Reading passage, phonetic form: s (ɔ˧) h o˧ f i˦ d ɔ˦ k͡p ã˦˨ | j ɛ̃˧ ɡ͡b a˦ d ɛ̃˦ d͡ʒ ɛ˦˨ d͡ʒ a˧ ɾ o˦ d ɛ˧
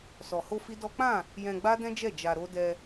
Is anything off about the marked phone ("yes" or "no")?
yes